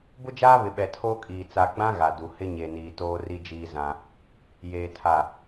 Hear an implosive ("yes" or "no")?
yes